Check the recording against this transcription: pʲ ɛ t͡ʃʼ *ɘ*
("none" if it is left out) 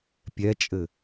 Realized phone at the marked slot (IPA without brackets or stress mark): ɘ